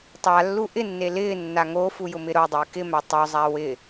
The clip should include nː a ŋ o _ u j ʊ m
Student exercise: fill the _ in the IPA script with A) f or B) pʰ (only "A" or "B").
A